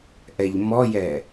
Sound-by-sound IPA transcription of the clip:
ʔ ɛ ʎ m ɔ j ɛ

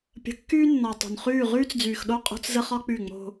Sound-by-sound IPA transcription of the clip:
pʲ ə̤˨ kː yː˦ nː ɔ˨ tˤ o̤˨ n χ yː˦˨ ʁ yː˦ t͡s d͡z yː˨ x ɗ o˦ qʼ o̤˦ t͡s z ə˦ χ ɒ˦ k͡p y˦˨ ŋ͡m o̤˦

